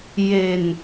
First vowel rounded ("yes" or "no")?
no